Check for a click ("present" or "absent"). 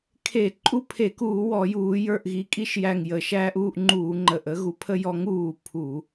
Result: present